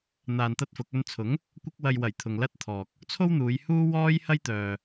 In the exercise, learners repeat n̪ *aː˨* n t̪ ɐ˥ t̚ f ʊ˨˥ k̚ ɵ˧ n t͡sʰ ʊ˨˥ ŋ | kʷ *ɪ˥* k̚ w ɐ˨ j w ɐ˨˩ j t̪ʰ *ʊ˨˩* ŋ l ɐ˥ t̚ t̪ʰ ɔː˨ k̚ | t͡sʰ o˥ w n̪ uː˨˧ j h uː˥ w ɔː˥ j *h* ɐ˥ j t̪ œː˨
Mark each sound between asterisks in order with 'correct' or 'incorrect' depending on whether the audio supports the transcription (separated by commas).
incorrect, incorrect, incorrect, correct